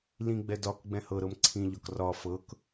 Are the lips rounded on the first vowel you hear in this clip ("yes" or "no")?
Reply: no